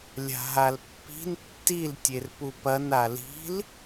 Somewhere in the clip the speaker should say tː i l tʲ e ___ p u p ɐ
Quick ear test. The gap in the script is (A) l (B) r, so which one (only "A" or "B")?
B